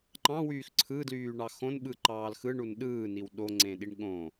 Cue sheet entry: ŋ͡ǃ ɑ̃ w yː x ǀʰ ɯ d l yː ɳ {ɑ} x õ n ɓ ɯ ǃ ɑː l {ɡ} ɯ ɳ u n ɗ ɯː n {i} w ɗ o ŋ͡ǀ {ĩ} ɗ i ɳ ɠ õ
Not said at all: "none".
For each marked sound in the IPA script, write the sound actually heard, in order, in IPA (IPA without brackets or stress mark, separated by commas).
ɑ, x, i, ẽ